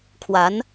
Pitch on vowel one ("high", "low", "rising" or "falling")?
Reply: rising